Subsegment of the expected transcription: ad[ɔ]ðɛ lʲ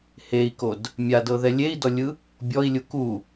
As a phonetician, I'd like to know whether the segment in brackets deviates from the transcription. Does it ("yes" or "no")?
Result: yes